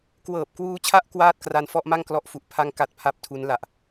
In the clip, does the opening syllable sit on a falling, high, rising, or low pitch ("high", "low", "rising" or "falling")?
low